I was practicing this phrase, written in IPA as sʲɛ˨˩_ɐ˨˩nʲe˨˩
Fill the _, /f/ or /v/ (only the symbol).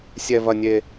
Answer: v